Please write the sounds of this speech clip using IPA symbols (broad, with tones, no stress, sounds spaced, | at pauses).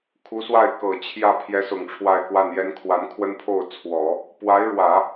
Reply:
kʰ u˧˥ s w a˥˩ ɪ̯ k ɤ˨˩ t͡ɕʰ j ä˥˩ pʰ j ɛ˧˥ s ʊ˨˩ ŋ ʈ͡ʂʰ w a˥˧ ɪ̯ k w a˥˩ n j ɛ˥ n kʰ w a˧˥ n kʰ w ə˥ n pʰ o˥˩ ʊ̯ t͡sʰ w ɔ˨˩˦ | p w a˧˥ ɪ̯ ɻ w ä˨˩˦